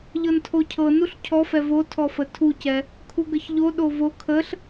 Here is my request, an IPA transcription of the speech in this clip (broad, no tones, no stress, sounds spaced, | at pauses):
ʎ ɤ n tʰ o cʰ ɤ n u ɬ cʰ ɔ f ɛ v o tʰ ɔ f ə tʰ u c ɛ | kʰ u ɡ ə ç ʎ o ɗ o v o kʰ ə ɬ